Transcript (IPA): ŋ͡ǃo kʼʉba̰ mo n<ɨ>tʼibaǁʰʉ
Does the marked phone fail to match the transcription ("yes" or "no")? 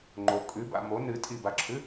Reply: no